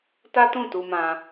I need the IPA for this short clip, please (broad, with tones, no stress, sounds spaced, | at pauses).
t a˦ t ũ˦˨ t u˧ m ã˧